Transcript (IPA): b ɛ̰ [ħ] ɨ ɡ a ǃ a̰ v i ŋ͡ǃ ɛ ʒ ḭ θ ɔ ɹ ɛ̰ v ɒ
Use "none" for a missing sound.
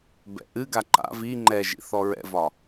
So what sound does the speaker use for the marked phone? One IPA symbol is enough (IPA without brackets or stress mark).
ʔ